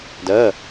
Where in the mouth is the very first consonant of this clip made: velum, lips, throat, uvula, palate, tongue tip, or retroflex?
tongue tip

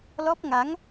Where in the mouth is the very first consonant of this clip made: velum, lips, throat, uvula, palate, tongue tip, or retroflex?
tongue tip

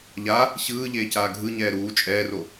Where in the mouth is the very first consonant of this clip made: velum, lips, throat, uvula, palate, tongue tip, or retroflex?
palate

